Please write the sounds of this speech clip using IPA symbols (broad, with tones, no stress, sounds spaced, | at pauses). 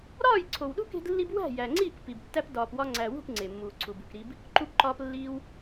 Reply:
ɾ ɒː˦˨ j ǀʰ o˨ w ɗ ṳ˦ k e̤˦ d lː i˦ b w æ̤˦˨ j æ˨ ŋ͡ǀ iː˦˨ k p i˨ b tː æ˦ p d ɒː˨ p w ɒ˧ ŋ͡ǀ æ˨ w ṳ˦˨ p ŋ͡ǀ e˨ mː uː˨ ǀʰ u˨ b ṳ˨ k ɾ i˧ b | ǃ u˦ p ǃ ɒː˦ p lː iː˦ w